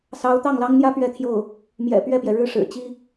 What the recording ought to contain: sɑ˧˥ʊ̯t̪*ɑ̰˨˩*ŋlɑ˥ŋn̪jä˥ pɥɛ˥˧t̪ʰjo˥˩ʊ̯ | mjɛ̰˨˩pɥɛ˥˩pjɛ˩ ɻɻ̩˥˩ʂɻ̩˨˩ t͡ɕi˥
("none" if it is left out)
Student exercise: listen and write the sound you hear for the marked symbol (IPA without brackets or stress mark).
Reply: ɑ˥˩